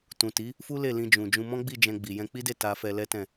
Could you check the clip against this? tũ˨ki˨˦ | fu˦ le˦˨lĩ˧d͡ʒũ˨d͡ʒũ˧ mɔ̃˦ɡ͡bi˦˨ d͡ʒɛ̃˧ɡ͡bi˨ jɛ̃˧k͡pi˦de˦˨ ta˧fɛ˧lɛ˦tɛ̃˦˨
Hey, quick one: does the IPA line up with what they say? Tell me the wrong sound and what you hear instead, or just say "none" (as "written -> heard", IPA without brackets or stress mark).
k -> t